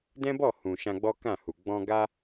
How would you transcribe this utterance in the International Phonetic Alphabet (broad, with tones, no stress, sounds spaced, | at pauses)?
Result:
d ɛ̃˦ b ɔ˦˨ h ũ˨ ʃ ã˧ ɡ͡b ɔ˦ k ã˦˨ h u˨ ɡ͡b ɔ̃˧ ɡ a˦